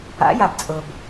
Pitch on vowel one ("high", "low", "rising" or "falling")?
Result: rising